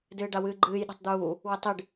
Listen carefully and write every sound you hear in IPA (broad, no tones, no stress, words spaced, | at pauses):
dɨːɖawɨːɡ͡ǃɨːj ɗo̤tˤd̪uː | wətˤɨɖ